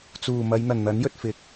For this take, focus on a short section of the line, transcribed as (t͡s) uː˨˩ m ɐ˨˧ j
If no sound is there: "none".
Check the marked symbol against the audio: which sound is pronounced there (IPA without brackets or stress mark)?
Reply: t͡s